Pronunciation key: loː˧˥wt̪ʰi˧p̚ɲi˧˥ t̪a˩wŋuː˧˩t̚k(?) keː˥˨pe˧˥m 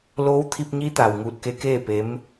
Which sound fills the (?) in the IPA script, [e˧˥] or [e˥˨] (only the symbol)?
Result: e˧˥